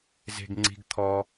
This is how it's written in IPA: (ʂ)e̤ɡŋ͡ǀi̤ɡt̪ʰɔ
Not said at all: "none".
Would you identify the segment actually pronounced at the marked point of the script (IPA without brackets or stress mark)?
z